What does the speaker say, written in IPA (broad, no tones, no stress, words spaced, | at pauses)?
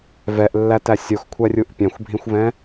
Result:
vɛʔlːætæ sʲoxkʷʰærʲuʔ pʲãxʷbʱĩxʷvɛ̃